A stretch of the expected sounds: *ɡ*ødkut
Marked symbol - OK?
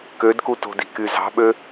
no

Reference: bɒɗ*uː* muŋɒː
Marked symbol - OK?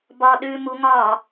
no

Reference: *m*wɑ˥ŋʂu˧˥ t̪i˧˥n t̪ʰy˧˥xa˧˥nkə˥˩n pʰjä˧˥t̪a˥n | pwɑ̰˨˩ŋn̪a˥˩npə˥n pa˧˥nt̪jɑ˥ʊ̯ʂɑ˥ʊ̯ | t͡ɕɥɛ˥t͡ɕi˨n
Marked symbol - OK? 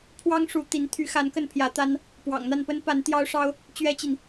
no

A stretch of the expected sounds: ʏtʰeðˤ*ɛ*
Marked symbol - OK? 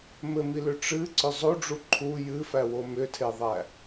no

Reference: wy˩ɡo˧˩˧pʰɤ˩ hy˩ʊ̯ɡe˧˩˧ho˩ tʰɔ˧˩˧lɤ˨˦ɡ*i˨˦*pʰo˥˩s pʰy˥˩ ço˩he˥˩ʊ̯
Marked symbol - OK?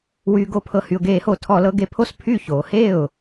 no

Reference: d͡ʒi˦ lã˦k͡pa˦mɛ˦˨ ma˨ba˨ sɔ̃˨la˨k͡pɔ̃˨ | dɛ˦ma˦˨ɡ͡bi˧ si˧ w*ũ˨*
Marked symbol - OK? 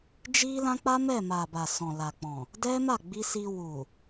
no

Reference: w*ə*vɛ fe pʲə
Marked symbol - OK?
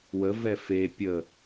yes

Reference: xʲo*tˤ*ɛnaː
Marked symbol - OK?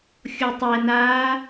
yes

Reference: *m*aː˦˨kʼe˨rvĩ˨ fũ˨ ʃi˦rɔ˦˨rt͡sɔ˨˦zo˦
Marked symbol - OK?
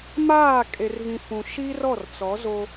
yes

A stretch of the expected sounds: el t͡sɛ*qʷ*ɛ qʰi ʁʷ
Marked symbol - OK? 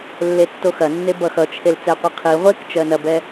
yes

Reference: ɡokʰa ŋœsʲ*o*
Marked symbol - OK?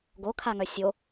yes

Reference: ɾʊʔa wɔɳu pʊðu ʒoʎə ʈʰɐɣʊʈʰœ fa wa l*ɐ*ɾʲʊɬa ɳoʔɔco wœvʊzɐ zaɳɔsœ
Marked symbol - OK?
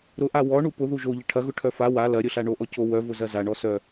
yes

